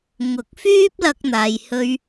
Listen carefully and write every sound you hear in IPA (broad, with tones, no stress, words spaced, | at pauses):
ŋʊ˨˥k̚fyː˥p̚ lɐ˧k̚n̪aː˨jhɵ˧ɥ